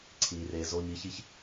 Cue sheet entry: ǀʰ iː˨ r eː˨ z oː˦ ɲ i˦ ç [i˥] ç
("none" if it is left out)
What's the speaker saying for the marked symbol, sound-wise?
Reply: i˥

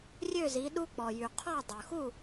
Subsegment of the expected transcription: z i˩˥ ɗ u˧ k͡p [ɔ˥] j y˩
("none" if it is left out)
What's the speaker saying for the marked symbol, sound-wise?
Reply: ɔ˩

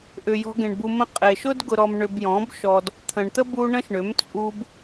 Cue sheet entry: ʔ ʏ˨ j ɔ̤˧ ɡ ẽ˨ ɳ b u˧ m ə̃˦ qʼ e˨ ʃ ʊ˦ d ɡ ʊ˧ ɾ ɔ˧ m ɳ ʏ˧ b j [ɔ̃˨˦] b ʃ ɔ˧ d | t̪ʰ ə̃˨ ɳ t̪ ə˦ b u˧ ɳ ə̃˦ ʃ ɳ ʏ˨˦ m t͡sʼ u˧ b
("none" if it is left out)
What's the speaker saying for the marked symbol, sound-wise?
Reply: ɔ̃˨˦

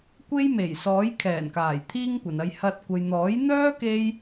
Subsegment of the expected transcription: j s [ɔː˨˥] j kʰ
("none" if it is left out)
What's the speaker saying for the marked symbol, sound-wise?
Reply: ɔː˨˥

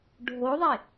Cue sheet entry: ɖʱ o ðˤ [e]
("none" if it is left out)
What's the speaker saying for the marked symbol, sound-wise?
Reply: e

